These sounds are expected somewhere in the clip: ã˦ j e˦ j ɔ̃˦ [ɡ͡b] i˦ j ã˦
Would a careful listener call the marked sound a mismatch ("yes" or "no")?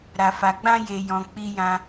yes